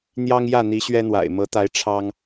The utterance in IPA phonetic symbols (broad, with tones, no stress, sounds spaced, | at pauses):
n̪ j ɑ˦ ŋ j ä˥˨ n̪ i˨˦ ɕ ɥ ɛ˦ n̪ w a̰˨˩ ɪ̯ m ɤ˨˦ t̪ a˨˦ ɪ̯ ʈ͡ʂʰ ɑ˦ ŋ